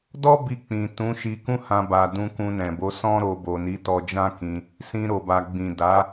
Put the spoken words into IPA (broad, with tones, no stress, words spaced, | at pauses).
dɔ˦bi˧ k͡pĩ˨ tũ˨˦ʃi˧ kũ˦hã˧ba˨ dũ˧kũ˧nɛ̃˨bo˨˦ sɔ̃˦ɾo˧bo˨ ni˨˦tɔ˧d͡ʒã˦ kĩ˧ | sĩ˧ɾo˨ba˨ ɡ͡bĩ˨da˨˦